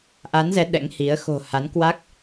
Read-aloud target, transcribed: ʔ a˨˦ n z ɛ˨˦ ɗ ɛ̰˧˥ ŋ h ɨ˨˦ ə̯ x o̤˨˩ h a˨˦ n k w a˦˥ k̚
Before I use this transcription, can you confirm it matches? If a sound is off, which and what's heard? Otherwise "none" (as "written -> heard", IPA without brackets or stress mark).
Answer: ɨ˨˦ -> i˨˦